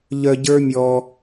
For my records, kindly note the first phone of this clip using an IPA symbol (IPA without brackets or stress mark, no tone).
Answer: ʎ